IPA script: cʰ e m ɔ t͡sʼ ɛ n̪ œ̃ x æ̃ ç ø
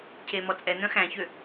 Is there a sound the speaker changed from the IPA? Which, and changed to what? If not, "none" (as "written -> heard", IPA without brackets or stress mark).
none